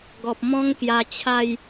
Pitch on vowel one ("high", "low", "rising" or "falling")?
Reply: low